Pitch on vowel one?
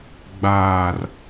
low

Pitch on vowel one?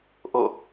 falling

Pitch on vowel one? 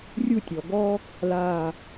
falling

